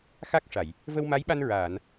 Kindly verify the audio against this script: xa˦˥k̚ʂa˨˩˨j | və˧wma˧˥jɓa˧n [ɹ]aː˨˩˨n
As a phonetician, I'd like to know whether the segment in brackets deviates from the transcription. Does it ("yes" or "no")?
no